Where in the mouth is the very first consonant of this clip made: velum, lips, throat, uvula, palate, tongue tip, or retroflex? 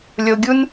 tongue tip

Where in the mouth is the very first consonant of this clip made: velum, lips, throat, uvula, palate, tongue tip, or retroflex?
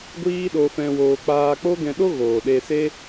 velum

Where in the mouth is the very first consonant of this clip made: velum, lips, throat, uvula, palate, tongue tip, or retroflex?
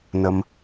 tongue tip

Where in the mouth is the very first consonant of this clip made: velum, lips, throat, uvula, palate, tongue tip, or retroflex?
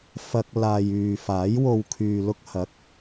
lips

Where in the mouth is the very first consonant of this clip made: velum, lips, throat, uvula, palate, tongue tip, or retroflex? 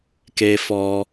velum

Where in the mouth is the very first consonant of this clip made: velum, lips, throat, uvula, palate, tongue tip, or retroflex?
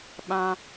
lips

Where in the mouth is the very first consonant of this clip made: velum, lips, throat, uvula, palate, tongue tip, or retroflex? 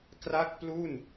velum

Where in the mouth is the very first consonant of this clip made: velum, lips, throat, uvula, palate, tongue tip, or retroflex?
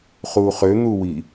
uvula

